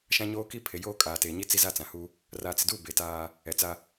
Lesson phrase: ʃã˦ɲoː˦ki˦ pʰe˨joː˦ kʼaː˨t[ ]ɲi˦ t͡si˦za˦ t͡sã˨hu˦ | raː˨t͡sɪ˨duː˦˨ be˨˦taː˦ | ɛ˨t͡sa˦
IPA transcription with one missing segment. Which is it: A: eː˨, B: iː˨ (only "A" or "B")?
A